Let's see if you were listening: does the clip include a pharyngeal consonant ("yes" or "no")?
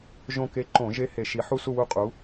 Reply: yes